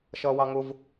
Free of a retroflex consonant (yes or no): yes